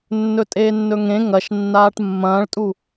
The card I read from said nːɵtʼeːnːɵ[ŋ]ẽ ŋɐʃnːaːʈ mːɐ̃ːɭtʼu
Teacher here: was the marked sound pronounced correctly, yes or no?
yes